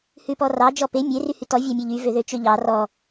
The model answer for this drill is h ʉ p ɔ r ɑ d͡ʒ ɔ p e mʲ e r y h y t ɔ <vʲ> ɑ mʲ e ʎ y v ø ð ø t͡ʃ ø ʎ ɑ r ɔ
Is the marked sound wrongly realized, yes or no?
no